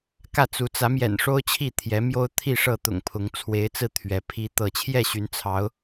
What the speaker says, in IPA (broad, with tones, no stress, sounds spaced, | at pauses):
k ä˥˨ t͡s u˨˦ t͡s ä˨˦ m j ɛ̰˨˩ n ʂ o˦ ʊ̯ t͡ɕʰ i˥˨ t̪ʰ j ɛ˨˦ m j o˦ ʊ̯ t̪ʰ i˥˨ ʂ ɤ˥˨ t̪ ʊ̰˨˩ ŋ pʰ ʊ˨˦ ŋ t͡sʰ w e˨˦ ɪ̯ t͡s ɹ̩˧ t̪ʰ ɥ ɛ˨˦ pʰ i˦ t̪ ɤ˥˨ t͡ɕʰ j ɛ˥˨ ɕ y˨˦ n t͡sʰ ɑ˨˦ ʊ̯